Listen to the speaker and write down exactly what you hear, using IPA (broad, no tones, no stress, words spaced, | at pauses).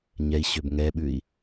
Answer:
ɲɛi̯ɕøb ŋɛɓʉi̯